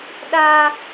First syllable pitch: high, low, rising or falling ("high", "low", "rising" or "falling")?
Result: high